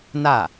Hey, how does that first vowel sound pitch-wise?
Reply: falling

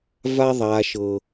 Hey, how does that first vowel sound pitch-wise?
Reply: high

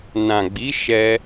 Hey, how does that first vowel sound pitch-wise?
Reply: low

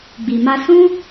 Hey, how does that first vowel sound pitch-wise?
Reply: low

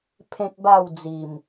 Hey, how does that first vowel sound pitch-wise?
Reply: high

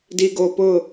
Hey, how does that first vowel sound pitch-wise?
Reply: low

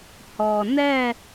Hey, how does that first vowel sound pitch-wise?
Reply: low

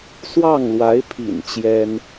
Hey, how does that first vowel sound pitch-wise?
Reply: falling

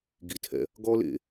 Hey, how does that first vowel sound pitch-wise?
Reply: low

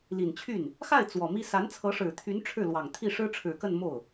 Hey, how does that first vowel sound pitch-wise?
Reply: low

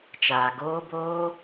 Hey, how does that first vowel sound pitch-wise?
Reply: low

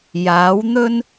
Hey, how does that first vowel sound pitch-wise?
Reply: rising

